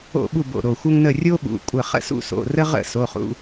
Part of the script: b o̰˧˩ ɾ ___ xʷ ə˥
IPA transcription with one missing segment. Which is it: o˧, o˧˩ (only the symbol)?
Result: o˧˩